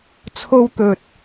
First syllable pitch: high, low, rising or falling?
high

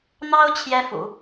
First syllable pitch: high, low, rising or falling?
high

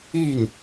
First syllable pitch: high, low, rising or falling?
falling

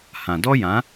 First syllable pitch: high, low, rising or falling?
low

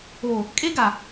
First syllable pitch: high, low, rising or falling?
low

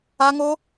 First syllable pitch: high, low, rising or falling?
high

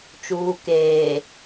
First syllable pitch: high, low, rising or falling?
low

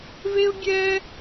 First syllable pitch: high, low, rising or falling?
high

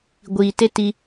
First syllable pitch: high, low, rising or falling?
low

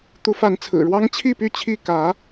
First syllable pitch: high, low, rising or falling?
rising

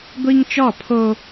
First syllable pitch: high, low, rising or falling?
high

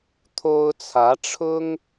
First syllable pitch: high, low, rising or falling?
high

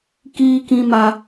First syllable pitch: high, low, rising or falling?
high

